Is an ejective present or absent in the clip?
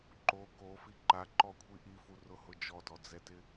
absent